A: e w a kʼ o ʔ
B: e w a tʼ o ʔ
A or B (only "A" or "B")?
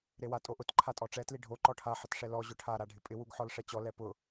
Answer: B